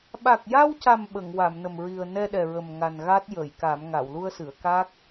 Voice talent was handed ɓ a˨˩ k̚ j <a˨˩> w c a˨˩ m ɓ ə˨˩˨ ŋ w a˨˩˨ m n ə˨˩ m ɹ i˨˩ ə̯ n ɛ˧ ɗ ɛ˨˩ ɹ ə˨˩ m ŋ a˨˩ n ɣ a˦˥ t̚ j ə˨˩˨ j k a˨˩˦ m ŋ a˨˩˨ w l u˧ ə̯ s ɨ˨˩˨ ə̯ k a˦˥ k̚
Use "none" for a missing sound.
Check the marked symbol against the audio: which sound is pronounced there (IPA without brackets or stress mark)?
a˧